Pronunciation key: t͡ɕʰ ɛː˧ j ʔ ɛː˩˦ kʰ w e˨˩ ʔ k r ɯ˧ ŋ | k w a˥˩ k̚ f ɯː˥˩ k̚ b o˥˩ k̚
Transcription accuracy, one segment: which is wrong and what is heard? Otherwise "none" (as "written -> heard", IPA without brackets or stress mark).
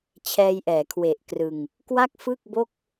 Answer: none